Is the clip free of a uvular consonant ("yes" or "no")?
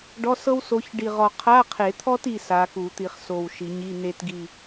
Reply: no